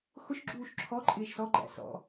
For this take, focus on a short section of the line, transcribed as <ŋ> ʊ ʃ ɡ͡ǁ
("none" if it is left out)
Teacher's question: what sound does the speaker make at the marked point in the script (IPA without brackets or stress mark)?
x